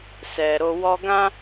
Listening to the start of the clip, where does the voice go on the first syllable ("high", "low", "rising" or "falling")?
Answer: low